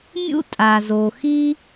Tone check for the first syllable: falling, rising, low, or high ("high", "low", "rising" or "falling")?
high